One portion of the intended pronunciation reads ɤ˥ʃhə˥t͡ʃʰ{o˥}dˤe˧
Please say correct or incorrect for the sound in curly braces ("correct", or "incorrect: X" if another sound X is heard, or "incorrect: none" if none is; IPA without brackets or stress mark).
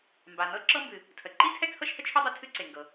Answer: correct